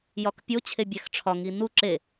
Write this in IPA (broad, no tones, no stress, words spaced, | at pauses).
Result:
jɒkpʲo t͡ɕʰebʲæxʈ͡ʂʰɒ ŋinu ǁe